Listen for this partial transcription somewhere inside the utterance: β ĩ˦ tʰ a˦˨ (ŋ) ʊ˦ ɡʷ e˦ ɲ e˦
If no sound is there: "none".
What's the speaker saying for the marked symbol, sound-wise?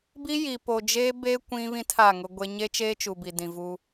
ŋ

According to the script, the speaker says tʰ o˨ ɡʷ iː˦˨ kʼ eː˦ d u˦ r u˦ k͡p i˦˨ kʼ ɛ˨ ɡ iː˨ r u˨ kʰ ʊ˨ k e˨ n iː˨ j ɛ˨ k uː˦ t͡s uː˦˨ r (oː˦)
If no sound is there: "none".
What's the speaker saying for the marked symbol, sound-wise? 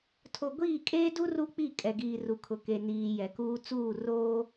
oː˦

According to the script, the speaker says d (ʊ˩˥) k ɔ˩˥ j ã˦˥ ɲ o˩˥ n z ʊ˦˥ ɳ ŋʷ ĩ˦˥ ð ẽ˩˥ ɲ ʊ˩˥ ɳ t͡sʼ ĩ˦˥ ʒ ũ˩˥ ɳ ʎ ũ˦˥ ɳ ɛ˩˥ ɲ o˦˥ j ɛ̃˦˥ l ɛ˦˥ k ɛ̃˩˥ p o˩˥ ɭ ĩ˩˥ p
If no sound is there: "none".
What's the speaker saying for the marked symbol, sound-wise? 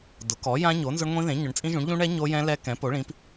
ʊ˩˥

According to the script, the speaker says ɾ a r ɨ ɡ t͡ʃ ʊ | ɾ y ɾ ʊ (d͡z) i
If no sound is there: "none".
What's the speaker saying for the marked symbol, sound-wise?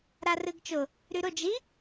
d͡ʒ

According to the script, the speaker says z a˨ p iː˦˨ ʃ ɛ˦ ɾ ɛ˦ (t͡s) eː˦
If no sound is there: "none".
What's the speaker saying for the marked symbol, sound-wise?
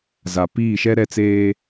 t͡s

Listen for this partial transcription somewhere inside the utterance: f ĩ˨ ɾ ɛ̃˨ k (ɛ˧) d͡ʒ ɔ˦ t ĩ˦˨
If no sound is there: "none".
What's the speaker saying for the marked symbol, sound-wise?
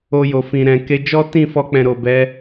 e˧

